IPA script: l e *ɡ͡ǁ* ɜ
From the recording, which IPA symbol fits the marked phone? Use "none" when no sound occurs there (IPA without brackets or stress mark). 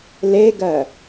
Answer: ɡ